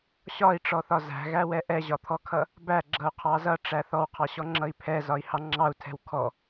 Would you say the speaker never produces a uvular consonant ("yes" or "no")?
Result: no